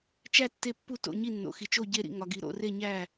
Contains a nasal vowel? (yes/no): no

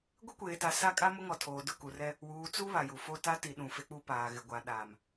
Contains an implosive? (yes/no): yes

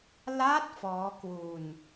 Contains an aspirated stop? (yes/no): no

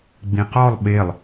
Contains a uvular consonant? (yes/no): yes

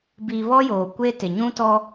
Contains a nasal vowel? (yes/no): yes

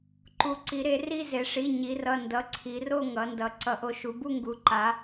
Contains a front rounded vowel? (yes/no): no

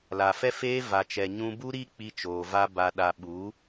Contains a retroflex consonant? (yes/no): no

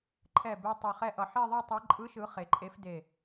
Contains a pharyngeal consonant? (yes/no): yes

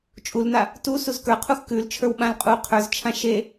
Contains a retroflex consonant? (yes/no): no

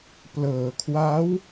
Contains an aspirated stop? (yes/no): yes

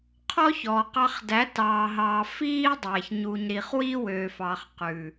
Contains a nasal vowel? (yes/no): no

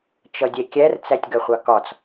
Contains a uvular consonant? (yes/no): yes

